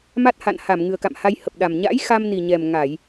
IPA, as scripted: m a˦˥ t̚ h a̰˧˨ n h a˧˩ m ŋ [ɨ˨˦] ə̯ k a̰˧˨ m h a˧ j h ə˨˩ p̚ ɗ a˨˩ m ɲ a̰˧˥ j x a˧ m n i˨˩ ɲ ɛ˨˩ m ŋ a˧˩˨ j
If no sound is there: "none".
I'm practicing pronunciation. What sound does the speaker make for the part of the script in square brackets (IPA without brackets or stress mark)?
ɨ˨˩